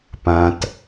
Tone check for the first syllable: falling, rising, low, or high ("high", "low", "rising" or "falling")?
low